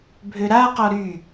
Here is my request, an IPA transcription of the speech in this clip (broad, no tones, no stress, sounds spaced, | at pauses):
bʱ ø ɾ a q ɔ ɾ y